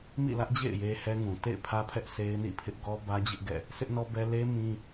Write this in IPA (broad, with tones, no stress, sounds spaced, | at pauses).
m ḭ˦˨ l ä˦ ʔ d͡ʑ ḛ˦˨ ɪ̯ j e˦ h ɛ˦ ŋ ũ˨ t ḛ˦˨ ɪ̯ pʰ ä˦ pʰ ɛ˦ ʔ sʰ e˦ ɪ̯ n ḭ˦˨ pʰ ɪ˦ ʔ ɡ ɔ˦ b ä˦ d͡ʑ ɪ˦ ʔ ɡ ɛ̰˦˨ | s ɪ˦ ʔ n ɔ˦ b ɛ˦ l e˦ m ĩ˦